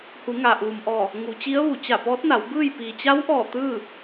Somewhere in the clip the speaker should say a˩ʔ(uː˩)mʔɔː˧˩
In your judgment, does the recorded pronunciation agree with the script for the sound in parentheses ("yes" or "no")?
yes